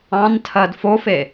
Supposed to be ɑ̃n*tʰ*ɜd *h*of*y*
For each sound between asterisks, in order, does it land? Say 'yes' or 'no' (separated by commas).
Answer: yes, no, no